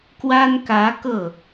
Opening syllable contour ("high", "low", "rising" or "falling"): high